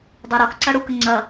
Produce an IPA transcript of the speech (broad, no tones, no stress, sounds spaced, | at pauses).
dˤ ɐ ɾ ɔ x ǀ ɐ ɽ u k ə ŋ͡ǀ ɐ